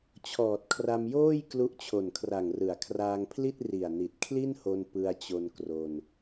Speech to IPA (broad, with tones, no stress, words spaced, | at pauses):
t͡ɕʰɔː˨˩t̚kʰra˧mjoː˥˩j klu˦˥ʔt͡ɕʰo˨˩nkʰra˨˩ŋ rɯ˩˦a̯kʰraː˧ŋpʰli˥˩t̚ ri˨˩a̯ni˨˩t̚kʰli˥˩nho˧n pɯ˧a̯t͡ɕo˧nkro˧n